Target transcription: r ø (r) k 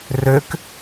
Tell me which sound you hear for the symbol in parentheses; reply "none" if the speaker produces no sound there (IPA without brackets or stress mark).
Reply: none